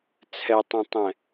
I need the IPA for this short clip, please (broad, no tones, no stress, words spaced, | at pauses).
t͡sʰɛtˤõtˤɛ̃